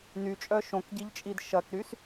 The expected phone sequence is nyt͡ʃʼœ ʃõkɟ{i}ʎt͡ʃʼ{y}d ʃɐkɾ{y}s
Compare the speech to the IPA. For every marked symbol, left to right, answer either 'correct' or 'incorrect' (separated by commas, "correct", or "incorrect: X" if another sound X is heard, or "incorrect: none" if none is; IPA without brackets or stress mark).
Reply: correct, incorrect: i, correct